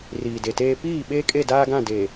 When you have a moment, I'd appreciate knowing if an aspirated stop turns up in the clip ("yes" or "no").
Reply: no